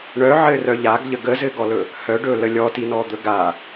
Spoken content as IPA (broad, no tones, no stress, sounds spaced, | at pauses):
ɳ œ ʕ ɘ r œ ʎ a ɡ ʎ ə ɡ ə z ɘ ɡ ɔ l ɵ | h œ ɖ ɵ l ə lʲ ɔ t i n ɔ d̪ ɵ ɡ a